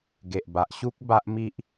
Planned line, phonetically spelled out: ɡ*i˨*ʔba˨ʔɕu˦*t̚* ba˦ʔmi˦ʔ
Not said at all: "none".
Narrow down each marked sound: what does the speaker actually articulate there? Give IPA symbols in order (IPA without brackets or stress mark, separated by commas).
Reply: e˨, k̚